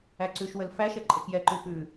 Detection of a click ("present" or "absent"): present